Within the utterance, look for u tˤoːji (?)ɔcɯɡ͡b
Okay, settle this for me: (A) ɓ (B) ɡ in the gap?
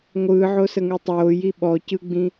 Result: A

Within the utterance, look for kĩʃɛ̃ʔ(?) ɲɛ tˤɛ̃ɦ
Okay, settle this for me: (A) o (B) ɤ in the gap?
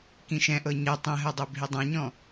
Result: B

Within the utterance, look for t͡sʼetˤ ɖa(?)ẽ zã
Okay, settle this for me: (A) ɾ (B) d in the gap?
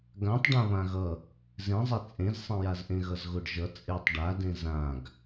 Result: B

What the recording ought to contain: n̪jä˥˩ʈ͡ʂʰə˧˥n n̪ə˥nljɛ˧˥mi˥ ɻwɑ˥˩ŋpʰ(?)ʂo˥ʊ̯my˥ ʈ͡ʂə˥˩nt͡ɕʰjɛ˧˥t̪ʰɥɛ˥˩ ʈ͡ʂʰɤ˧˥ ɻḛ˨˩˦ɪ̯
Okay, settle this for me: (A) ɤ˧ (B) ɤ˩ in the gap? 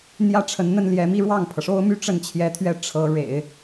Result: B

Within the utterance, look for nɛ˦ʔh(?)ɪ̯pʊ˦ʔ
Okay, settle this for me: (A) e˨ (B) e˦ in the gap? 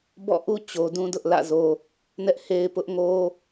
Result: B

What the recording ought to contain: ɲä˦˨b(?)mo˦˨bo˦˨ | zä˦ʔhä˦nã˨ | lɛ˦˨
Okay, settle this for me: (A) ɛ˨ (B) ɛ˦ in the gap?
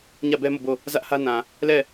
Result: B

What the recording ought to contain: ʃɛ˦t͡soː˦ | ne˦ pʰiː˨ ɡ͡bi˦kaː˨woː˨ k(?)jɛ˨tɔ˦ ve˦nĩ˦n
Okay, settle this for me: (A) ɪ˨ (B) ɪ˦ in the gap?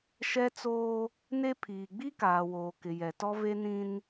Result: A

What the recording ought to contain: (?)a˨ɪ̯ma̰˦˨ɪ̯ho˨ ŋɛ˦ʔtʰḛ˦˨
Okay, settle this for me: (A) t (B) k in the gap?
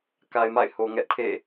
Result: B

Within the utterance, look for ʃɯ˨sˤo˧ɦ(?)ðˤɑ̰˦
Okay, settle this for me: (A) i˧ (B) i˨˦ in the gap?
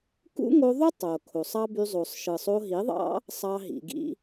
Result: B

